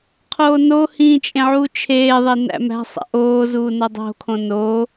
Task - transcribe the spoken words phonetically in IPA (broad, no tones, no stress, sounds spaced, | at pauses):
qʰ oː n o h ĩː t͡ʃʼ ẽ ʕ uː t͡ʃʰ eː ðˤ e n æ̰ m æ̤ sˤ æ̰ ʔ oː z uː n o dˤ o̤ kʰ õ n o